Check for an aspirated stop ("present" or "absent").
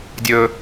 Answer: absent